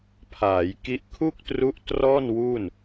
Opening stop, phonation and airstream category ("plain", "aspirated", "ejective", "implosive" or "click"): aspirated